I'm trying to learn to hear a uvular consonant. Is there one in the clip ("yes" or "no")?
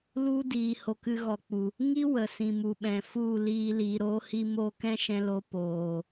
no